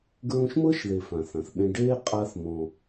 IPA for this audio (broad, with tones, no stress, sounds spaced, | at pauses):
ɡ ɹ ũ˧ ʃ m ɤ˦ ʃ ð e˨ f ã˨ θ ã˨ θ ɓ ẽ˦ ɖ eː˦ qʼ a˦ θ m ɔ̃˧